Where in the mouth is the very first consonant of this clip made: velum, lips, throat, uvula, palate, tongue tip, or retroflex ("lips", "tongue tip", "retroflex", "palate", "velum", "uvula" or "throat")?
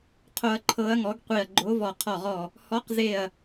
uvula